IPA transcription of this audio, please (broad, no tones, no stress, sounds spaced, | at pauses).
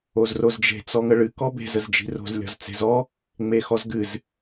o z r o z d͡ʒ e̤ t͡s ɔ ŋ ə ɭ ɨ k ɔ b e̤ z ə z d͡ʒ i̤ r o̤ z lʲ ɔ̤ z t͡s e̤ z ɔ | ŋ͡m e x ɔ z ɡ ɨ z